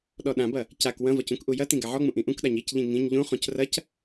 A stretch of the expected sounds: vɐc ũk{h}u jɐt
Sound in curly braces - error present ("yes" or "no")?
yes